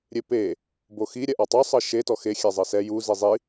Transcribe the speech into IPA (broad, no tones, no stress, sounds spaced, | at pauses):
ɾʲ e p e | b o x i ɾʲ ɛ ʔ ɔ tˤ o sˤ ɤ ʃ e t ɔ x e xʲ ɛ zˤ ɤ s ɛ j u z i zˤ i